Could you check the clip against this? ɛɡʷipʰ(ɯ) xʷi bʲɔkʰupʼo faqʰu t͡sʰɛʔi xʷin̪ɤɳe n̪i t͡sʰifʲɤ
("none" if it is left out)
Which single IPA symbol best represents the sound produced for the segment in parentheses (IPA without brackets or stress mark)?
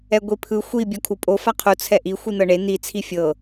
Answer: ɯ